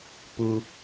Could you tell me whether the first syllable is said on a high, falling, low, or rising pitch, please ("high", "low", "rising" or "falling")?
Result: low